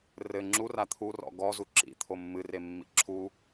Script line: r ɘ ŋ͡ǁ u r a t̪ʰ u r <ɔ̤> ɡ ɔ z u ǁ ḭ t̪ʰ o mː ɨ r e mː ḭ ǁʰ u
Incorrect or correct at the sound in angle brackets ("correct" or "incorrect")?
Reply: incorrect